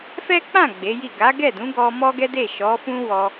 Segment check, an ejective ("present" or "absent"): absent